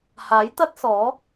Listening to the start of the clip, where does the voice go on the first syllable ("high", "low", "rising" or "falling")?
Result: rising